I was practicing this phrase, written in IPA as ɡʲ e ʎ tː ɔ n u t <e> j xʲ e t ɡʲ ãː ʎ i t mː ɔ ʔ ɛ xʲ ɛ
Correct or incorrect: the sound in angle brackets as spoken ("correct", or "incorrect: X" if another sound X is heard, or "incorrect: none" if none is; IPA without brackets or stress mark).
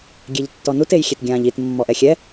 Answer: correct